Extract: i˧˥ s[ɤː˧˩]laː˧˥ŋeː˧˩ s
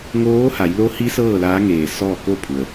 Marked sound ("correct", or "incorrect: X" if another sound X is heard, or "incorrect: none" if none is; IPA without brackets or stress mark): incorrect: ɤː˥˨